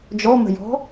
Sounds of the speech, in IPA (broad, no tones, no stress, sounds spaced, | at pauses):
d͡ʒ ɔ m ə̤ j ɔ̤